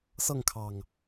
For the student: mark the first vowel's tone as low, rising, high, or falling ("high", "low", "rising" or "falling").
falling